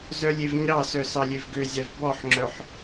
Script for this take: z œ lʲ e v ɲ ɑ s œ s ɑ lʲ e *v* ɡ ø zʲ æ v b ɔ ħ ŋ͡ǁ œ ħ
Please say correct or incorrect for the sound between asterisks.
correct